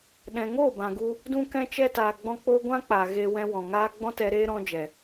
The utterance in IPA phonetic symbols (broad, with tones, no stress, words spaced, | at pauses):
ɗɛ̃˨ŋoː˦˨ bã˨ɡu˧ | dũ˧kɛ̃˧t͡ʃɛ˧taː˨ ɡ͡bɔ̃˧k͡poː˧ɡʷã˦k͡paː˨ ɣeː˧wɛ̃˧wɔ̃˨ ŋaː˧ ɡ͡bɔ̃˦tɛ˧ɾeː˦ ɾɔ̃˧d͡ʒɛ˨